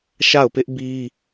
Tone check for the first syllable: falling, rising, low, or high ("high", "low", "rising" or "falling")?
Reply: falling